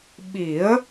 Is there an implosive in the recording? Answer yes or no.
yes